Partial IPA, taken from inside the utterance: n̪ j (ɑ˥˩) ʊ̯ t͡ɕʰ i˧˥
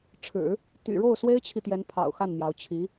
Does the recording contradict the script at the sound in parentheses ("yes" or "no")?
yes